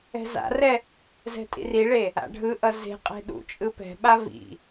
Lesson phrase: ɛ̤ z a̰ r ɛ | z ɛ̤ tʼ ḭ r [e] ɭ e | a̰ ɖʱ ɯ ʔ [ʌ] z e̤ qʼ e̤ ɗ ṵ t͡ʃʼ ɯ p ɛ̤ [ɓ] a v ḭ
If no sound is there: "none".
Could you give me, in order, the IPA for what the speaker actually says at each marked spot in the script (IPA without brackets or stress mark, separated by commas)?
i, ʌ, ɓ